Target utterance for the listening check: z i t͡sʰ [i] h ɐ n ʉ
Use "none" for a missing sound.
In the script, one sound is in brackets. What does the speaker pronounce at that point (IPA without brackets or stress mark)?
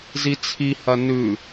i